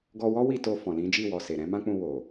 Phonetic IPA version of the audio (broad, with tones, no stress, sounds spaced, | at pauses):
ɡ ɔ˧ w ɔ˦ w i˦˨ t o˧ f ɔ̃˨ l ĩ˨˦ d͡ʒ i˦˨ w ɔ˨ s e˨ ɾ ɛ̃˨˦ m ã˦ k͡p ũ˧ w o˨